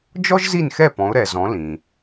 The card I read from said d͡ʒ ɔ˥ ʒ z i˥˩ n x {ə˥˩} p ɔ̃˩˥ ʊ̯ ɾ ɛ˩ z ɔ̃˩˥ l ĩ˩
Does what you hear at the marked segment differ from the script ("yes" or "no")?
yes